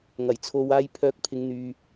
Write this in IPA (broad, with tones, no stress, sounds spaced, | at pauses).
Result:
ŋ ɐ˨˩ j t͡sʰ o˧ w aː˥ j pʰ œː˧ k̚ pʰ ɪ˨˧ ŋ n̪ yː˨